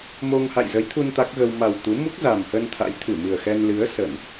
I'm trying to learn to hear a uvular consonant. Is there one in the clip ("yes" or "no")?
no